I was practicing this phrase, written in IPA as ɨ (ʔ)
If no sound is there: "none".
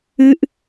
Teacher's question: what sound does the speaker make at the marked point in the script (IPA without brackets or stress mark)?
ʔ